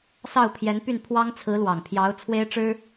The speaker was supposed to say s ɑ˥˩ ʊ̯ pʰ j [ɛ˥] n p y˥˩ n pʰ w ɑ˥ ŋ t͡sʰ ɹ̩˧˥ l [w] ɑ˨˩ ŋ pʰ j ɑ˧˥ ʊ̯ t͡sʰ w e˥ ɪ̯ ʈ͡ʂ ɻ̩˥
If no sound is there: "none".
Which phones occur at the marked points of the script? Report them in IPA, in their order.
ɛ˧˥, w

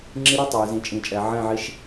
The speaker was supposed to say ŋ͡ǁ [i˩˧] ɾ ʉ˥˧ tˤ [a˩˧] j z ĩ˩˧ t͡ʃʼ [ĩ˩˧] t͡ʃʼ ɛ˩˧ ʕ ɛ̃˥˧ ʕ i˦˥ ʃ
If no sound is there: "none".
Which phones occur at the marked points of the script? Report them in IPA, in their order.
i˦˥, a˩˧, ĩ˩˧

